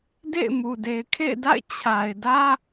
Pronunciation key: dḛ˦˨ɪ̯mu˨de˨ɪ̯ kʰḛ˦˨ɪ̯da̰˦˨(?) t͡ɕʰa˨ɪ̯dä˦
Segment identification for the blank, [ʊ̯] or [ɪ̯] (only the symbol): ɪ̯